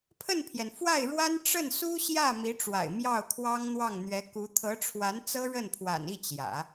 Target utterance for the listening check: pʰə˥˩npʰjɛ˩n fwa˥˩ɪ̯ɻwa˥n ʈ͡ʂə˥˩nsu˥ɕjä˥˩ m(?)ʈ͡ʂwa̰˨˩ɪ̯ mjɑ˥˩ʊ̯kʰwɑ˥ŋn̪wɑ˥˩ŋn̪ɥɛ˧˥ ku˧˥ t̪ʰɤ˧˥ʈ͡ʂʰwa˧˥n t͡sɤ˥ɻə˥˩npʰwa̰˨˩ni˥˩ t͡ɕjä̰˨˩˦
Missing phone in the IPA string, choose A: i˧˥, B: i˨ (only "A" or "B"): A